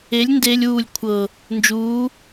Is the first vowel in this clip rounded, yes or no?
no